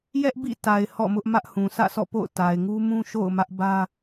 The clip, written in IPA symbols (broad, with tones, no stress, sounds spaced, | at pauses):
j ɛ˦ ʔ b ḭ˦˨ t a˨ ɪ̯ h ɔ̰˦˨ m ʊ˦ ʔ m ä˦ ʔ h ũ˨ sʰ ä̰˦˨ sʰ ɔ̰˦˨ p o̰˦˨ ʊ̯ t a˨ ɪ̯ ŋ u˦ m ũ˦ ʃ o̰˦˨ ʊ̯ m ä˦ ʔ b ä˦